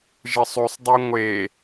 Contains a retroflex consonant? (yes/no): no